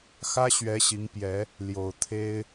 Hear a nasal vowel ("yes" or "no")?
no